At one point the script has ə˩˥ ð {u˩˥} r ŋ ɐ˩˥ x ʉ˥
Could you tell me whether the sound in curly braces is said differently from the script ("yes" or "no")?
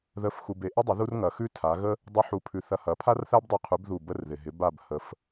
yes